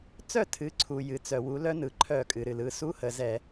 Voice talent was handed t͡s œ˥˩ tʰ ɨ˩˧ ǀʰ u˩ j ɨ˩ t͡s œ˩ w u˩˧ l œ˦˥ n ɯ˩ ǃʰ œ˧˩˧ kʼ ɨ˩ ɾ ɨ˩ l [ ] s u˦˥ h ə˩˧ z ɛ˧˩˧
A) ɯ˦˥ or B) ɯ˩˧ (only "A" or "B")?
B